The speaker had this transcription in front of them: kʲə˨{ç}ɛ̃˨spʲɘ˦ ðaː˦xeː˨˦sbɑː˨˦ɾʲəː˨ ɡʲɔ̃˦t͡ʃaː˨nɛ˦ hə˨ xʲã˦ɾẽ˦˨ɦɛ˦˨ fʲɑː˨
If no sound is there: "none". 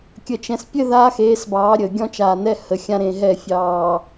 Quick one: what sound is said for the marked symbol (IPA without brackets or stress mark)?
t͡ʃ